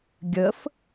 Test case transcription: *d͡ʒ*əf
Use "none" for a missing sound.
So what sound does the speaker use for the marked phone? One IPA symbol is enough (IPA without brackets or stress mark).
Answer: ɡʲ